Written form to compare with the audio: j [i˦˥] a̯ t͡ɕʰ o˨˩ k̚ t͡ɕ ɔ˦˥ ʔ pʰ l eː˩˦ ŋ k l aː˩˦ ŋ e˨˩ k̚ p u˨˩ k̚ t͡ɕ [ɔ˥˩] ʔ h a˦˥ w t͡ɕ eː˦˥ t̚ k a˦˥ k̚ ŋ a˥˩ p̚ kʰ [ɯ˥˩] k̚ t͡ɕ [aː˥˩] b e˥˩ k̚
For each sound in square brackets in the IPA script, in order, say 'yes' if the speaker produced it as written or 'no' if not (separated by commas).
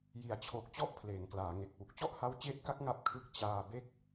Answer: no, yes, yes, no